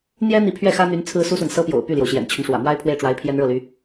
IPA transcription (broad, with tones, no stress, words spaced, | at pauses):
n̪jɛ˥n̪i˧˥ pʰɥɛ˥˩xä˥n̪y˧˥n t͡sʰɹ̩˥su˥swə˨n sɤ˥pjo̰˨˩ʊ̯ py˥˩ljo˩ʊ̯ɕjɛ̰˨˩nt͡ɕʰy˦n ʂwä̰˨˩mwa˥ɪ̯ pʰwe˥˩ɪ̯ʈ͡ʂwa˧˥ɪ̯ pʰjɛ˥nɻɤ˥˩ly˧˥